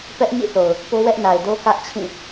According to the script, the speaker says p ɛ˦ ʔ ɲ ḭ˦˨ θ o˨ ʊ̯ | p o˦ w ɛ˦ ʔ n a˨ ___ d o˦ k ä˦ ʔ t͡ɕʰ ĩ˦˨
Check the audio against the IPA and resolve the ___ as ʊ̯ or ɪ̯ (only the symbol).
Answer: ɪ̯